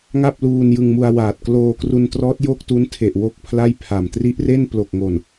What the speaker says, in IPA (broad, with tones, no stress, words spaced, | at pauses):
ŋa˥˩p̚luː˧n jɯ˧ŋmu˧a̯waː˨˩t̚ kloː˧kru˧ntrɔː˦˥t̚ jo˥˩k̚tu˦˥ntʰe˨˩ʔ wo˥˩k̚pʰla˥˩jpʰa˨˩m tri˦˥ʔre˥˩nplo˨˩k̚ŋo˨˩n